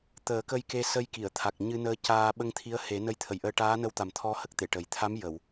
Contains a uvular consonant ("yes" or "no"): no